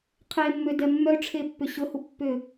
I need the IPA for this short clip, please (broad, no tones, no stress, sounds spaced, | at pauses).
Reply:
qʰ e mː ø d ɛ mː œ ʈ͡ʂʰ e pː ʏ ɕ ʊ h u pː ʏ